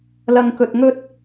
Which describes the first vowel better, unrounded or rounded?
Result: unrounded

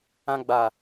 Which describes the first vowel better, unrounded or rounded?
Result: unrounded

